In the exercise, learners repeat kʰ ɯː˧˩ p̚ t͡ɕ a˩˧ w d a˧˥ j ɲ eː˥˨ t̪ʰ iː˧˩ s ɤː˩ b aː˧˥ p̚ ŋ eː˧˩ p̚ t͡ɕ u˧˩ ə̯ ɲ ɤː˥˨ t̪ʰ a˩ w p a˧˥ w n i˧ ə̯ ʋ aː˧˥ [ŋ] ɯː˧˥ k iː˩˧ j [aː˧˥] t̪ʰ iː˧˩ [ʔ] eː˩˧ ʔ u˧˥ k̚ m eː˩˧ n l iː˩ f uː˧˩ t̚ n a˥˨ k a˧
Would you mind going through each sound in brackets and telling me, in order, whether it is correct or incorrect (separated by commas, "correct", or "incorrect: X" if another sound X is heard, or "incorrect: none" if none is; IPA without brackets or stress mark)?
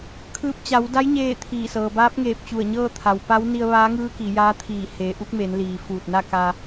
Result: correct, correct, incorrect: h